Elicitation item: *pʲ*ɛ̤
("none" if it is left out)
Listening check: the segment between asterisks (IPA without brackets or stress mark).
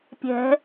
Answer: pʲ